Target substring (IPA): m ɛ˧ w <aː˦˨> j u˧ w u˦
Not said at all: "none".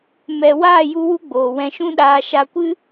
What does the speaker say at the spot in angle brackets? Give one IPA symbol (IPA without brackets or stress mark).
aː˦˨